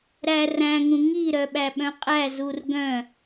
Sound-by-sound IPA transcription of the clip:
ɾæ ræ̃ŋũ ŋi ɾœɓæɓœ̃qʼæ zurɡœ̃

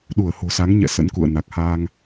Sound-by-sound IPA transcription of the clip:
ɗu˧˩ə̯ho̤˨˩sa˨˦ŋɲɛ̰˧˨ sə̰˧˥nkṵ˧˨ə̯ na˨˩k̚ha˧ŋ

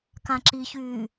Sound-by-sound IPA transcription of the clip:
kãǁiçyː

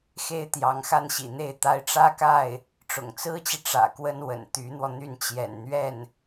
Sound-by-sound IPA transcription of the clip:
xe˥ɪ̯t̪jɑ˧˥ŋxa˥˩nɕḭ˨˩ n̪e˥˩ɪ̯ t̪a˥ɪ̯ ʈ͡ʂä˥ka˥˩ɪ̯ | ʈ͡ʂʊ̰˨˩ŋt͡sɹ̩˥t͡ɕi˨ ʈ͡ʂä̰˨˩kwə˥n wə̰˨˩n t̪y˧˥n̪wɔ˧ n̪y˥˩nt͡ɕjɛ̰˨˩nn̪ɥɛ˥˩n

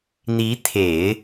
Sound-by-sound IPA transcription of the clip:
n̪i˧˥t̪ʰe˨˩˦ɪ̯

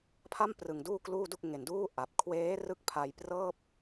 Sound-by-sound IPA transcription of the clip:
pʰa˥˩mprɯ˨˩ŋ duː˥˩kluː˥˩du˥˩k̚ ŋe˨˩nduː˥˩ ʔa˨˩p̚ kʰweː˦˥rɯ˦˥k̚pʰa˧jprɤː˥˩p̚

